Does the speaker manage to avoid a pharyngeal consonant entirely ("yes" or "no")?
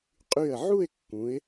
no